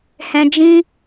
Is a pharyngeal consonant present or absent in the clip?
absent